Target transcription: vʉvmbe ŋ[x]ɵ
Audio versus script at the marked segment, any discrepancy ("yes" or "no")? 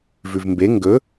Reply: yes